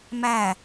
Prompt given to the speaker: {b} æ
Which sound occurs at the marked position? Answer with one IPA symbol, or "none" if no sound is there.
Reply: m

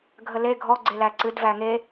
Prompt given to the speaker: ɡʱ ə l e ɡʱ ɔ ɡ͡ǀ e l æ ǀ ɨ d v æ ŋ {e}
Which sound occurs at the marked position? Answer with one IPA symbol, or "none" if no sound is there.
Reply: e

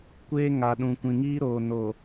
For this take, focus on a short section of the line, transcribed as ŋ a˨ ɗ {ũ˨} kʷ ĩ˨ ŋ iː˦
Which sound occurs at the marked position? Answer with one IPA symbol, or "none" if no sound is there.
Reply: ũ˨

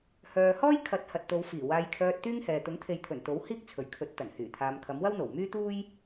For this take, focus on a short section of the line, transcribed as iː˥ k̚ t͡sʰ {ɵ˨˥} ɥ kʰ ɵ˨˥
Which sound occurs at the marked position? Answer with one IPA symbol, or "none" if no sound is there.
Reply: ɵ˨˩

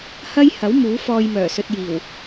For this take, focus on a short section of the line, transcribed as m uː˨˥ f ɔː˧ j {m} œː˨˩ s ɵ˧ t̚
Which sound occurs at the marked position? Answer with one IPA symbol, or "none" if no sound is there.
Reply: m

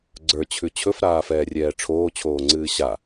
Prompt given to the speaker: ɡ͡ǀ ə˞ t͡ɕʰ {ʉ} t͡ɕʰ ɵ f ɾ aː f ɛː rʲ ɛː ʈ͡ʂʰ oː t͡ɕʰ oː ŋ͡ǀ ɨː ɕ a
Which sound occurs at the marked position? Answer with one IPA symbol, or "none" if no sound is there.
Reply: ʉ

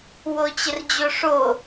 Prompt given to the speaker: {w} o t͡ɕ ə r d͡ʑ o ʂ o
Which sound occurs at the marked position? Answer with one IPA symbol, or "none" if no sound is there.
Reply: w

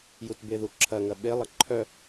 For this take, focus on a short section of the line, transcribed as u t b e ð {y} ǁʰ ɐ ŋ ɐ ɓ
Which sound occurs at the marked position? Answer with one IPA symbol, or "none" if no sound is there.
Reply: u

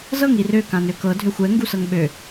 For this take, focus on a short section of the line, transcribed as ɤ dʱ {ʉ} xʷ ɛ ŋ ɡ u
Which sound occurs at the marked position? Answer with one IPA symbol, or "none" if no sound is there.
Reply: ø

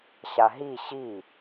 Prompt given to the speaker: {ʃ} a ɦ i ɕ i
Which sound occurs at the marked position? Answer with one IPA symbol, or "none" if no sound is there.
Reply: ɕ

